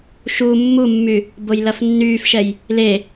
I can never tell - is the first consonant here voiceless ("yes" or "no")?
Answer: yes